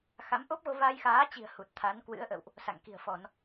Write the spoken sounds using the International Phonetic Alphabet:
x a˨˦ m ʔ o˦˥ p̚ ɣ o˧ v a˧ j x aː˨˦ t͡ɕ i̤˨˩ ə̯ h u˨˩ t̚ t̪ʰ a˨˦ n k w ɨ̰˧˥ ə̯ ʔ ə̰˧˨ w ʔ | s a̰˧˨ ŋ k i̤˨˩ ə̯ f ɔ˧˩˨ n

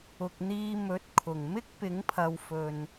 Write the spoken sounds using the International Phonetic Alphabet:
ʊ˨ k̚ n̪ iː˧ m ɵ˨˥ t̚ kʰ ʊ˨˩ ŋ m ɪ˥ k̚ p ɪ˨˥ ŋ pʰ ɐ˨ w f ɵ˨ n

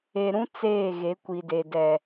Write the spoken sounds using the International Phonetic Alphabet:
e˨ ɾ ũ˦ t͡s eː˦˨ ɣ e˨˦ kʷ i˨ d e˨ d ɛ˨

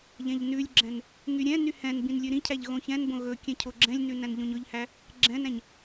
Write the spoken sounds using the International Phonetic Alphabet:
ʎ ɛ̃ ʎ n ʉ lʲ ɡ͡ǁ ɛ̃ n | ŋ y ɾʲ ɛ̃ n y h ɛ̃ n b ĩ n lʲ ʉ ɾ ĩ cʰ æ ʎ ɣ õ ç ɛ̃ n b õ ɣ ɵ kʲ ɛ̃ cʰ o ɡ͡ǁ ɛ̃ lʲ n ʉ n æ̃ n ʎ õ ɲ ɵ ʎ h æ | ɡ͡ǁ ɛ̃ n æ̃ ɲ

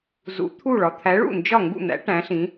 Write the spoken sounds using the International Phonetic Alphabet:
z ṵ˨˥ t̪ʰ u˥˩ ɭ ɒ˨ t̪ʰ æ˨˥ ɭ ṵ˥˩ n d͡ʒ ɒ˥˩ ŋ ɡ ṵ˥˩ n̪ æ̰˨˥ ʈ æ̃˨˥ ɬ ĩ˨˥

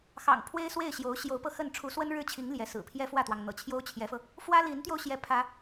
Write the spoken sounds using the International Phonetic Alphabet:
x ɑ̰˨˩ ŋ pʰ w e˥ ɪ̯ s w e˥˩ ɪ̯ ɕ j o˧˥ ʊ̯ ɕ j o˧˥ ʊ̯ p ɤ˧ x ə˥˩ n ʈ͡ʂʰ u˧˥ s w ə˥ n ɻ ɻ̩˥˩ t͡ɕʰ i˧˥ ŋ l j ɛ˧˥ s ɹ̩˨˩ pʰ j ɛ˥ f w ä˥˩ t̪ w ɑ˩ ŋ n̪ ɤ̰˨˩ t͡ɕʰ j o˥ ʊ̯ t͡ɕʰ j ɛ˧˥ f ɤ˧ | f w ä˥ l i˧˥ n t̪ j o˧ ʊ̯ ɕ j ɛ˥˩ pʰ ä˥

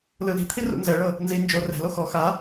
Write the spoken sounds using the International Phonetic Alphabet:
l ɯ l i̤ t̪ʰ i r ṵ n z ɛ ɭ ɤ | n z i n d͡ʒ o r ɛ̤ l o x ɔ x a

